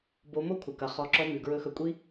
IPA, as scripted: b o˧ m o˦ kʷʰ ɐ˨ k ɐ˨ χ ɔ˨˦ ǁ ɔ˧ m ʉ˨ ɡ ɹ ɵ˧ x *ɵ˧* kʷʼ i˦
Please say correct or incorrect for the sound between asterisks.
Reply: correct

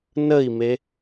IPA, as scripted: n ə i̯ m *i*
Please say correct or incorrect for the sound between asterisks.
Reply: incorrect: e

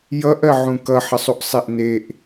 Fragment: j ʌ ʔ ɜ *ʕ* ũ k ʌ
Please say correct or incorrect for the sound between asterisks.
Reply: correct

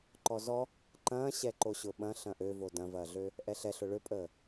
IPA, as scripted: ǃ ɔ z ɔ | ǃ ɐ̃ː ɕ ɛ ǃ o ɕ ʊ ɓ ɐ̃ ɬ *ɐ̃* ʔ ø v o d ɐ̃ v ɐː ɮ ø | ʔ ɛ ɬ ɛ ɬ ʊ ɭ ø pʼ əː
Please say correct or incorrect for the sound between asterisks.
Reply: correct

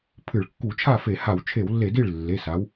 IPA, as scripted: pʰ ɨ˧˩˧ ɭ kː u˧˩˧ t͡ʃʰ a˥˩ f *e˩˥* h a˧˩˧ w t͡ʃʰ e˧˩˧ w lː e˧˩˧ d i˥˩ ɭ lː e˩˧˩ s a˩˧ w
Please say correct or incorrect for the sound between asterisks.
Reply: incorrect: e˧˩˧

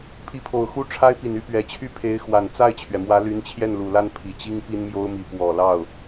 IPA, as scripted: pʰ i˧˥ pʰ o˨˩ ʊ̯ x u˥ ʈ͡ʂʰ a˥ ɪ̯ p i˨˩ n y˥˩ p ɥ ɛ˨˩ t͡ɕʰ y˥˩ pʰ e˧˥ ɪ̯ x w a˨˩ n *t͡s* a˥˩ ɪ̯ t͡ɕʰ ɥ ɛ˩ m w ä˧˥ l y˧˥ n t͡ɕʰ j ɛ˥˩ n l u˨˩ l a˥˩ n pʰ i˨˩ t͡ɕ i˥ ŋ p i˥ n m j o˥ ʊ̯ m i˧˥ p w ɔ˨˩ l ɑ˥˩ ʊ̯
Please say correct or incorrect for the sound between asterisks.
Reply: correct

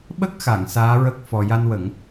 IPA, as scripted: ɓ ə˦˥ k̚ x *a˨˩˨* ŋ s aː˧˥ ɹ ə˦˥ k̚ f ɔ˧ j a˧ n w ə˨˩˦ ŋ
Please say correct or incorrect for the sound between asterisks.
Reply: correct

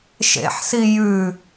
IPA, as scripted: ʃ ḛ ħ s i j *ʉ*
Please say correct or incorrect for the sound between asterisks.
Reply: correct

